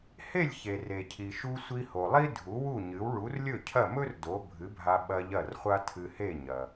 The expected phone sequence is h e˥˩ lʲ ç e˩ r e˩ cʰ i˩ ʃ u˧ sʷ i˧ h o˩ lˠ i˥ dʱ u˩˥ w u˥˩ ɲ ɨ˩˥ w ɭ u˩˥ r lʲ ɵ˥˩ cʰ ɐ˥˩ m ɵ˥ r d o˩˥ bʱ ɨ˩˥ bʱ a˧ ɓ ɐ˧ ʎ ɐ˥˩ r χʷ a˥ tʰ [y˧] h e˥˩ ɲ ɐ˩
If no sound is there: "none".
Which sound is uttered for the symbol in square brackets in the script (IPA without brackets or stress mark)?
ɨ˧